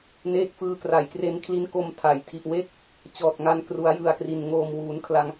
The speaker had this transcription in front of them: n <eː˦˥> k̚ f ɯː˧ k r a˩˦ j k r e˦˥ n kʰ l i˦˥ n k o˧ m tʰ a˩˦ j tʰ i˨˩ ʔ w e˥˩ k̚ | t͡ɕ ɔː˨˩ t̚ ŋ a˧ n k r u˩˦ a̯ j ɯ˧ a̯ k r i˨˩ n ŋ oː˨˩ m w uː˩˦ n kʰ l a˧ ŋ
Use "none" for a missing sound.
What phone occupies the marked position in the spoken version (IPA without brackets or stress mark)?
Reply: eː˦˥